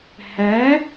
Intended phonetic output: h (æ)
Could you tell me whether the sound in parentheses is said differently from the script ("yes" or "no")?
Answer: no